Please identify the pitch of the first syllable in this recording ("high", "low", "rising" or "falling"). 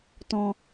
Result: low